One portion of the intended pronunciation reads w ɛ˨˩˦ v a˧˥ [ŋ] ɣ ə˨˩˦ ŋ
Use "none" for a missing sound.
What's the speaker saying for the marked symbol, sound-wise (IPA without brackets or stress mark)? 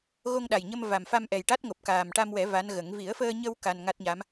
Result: n